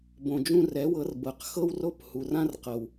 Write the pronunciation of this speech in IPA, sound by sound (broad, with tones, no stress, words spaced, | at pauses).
bõ˨d͡ʒũ˧rɛ˨˦wɤ˨˦r bɤ˨q xɤ˧wro˧p hu˨rã˦rqɤ˨w